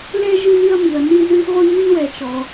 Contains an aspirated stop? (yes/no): no